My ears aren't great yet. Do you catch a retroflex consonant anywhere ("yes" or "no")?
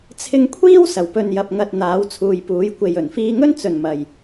no